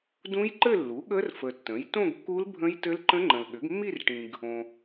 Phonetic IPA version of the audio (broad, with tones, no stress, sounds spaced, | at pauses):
d ũ˦˥ j ǃ ɘ˥˧ lː u˩˥ ɠ ə˦˥ r f ə˨ tː ə̃˩˥ j t õ˥˧ ɡ kː u˦˥ l bʱ ə̃˦˥ j t ɘ˦˥ l ǃ ə̃˦˥ ŋ͡ǃ ə̃˨ l ɠ ʏ˩˥ ɡ mː i˥˧ r ʈ ĩ˨ ɡ | õ˨